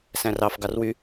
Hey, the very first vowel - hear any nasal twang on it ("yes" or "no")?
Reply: yes